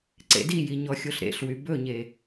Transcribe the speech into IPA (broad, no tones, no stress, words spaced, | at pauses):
ǀḛdiji ɲɔxʲoɬɾḛɬwy bɵɲe